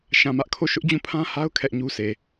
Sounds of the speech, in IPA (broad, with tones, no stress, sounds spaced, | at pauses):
ʃ ã˨ m ä˦ ʔ kʰ o˦˨ ʃ ʊ˦ ʔ d͡ʑ ũ˦˨ pʰ ã˦ h a˦ ʊ̯ kʰ ɛ˦ ʔ ɲ u˦ sʰ e˨